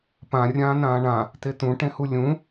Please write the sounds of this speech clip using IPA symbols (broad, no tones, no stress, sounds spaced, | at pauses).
p ã rʲ ãː n ãː ɳ ã | t e t ũ ʈ ẽ h u lʲ ũ